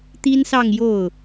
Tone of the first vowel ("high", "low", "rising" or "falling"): high